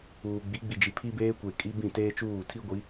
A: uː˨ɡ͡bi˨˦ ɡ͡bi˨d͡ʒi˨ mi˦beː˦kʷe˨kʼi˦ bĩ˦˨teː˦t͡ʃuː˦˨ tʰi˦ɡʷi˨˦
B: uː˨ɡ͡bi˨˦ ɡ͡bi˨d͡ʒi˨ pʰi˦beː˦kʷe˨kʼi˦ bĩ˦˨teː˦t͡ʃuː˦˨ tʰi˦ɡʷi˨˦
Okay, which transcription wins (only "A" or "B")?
B